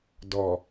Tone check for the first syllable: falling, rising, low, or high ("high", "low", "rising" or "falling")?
low